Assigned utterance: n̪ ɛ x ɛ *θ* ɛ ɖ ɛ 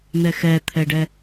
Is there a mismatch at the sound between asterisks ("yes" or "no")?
yes